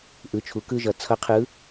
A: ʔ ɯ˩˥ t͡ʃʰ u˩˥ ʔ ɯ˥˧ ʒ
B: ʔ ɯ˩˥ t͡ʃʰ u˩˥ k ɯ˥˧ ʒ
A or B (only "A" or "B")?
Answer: B